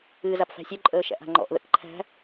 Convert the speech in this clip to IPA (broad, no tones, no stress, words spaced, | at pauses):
ɨːzapfæ̤sʲœ ǃʼəːʃæ̰ʔa̤ŋ͡ǃɔ̰ʔ ðə̰kǃʰæ̤